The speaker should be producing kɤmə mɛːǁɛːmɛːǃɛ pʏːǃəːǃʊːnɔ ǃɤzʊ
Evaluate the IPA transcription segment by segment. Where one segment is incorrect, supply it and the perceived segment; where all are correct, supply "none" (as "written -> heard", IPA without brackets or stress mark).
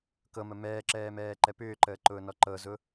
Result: none